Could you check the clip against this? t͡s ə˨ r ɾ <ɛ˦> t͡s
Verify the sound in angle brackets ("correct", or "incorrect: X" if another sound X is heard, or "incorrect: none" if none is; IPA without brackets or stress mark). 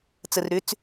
incorrect: ʏ˦